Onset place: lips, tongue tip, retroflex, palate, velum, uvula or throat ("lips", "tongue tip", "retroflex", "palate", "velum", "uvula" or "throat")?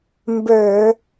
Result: lips